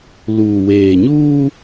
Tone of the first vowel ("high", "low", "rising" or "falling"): low